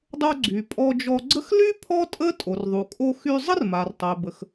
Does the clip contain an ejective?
yes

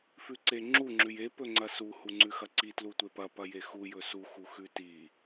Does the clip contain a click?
yes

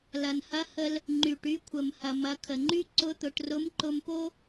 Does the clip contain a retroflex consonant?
yes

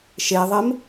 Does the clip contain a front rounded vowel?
no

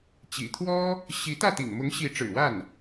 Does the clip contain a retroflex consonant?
yes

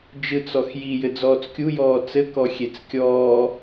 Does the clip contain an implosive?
no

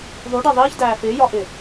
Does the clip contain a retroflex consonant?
yes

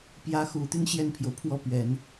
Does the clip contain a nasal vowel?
no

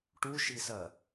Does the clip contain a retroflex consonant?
yes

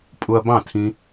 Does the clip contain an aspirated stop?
yes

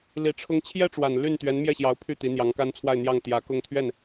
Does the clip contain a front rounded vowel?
yes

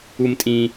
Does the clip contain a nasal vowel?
yes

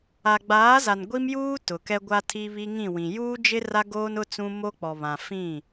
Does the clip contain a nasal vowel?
yes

